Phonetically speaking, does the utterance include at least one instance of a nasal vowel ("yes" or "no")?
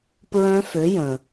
yes